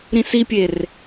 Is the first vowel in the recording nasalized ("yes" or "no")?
yes